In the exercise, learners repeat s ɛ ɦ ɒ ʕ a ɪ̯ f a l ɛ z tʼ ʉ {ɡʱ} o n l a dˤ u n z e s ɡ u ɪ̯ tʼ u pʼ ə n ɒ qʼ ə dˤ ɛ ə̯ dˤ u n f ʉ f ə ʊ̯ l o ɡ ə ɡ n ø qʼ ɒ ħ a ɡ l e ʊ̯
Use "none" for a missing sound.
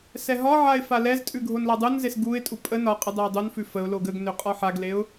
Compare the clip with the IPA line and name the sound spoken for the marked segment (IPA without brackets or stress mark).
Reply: ɡʱ